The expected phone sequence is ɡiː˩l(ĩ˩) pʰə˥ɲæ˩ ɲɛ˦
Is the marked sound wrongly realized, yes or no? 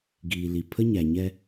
yes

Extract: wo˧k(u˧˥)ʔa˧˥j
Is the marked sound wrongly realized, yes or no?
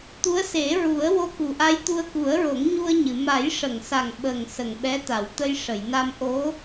yes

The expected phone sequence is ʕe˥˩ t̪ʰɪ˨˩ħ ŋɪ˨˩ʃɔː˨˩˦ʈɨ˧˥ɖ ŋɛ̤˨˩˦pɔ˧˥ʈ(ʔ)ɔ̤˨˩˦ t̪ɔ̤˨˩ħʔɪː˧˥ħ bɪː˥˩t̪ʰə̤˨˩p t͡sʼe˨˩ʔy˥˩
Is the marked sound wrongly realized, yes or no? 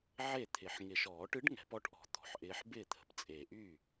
no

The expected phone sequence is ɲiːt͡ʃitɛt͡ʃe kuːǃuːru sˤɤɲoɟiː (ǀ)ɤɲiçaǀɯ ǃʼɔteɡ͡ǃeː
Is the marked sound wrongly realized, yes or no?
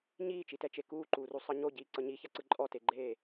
no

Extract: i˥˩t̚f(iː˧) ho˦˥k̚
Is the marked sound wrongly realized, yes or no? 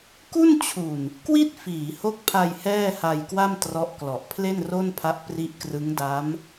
yes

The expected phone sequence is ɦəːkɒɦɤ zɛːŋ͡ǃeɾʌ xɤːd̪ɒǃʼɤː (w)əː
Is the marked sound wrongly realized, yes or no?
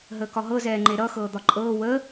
no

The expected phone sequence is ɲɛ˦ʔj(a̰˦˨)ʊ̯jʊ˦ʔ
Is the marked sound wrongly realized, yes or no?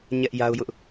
yes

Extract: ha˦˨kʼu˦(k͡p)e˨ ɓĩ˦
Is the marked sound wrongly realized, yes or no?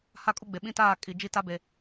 yes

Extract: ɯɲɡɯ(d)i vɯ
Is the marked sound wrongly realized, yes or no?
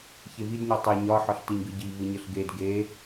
yes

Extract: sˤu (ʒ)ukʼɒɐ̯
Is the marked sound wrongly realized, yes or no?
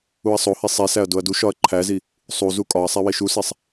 yes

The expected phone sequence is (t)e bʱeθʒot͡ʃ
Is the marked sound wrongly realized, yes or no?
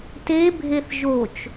no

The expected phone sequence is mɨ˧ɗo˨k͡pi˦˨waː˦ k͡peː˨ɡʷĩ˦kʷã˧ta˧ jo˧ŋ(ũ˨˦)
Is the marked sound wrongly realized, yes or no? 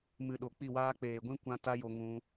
yes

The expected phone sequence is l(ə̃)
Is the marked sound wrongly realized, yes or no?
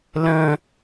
no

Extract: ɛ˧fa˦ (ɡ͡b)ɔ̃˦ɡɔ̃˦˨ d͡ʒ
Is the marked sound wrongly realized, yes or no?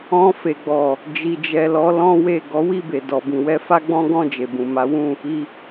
no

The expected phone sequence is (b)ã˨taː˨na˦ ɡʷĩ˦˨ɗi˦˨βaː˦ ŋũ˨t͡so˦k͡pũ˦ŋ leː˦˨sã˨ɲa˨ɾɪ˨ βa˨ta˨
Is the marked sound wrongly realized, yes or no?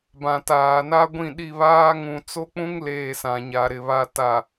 no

